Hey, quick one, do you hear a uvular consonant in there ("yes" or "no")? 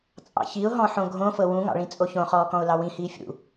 yes